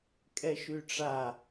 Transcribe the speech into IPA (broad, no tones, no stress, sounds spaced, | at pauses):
kʼ ɛ ʃ y ʈ͡ʂ a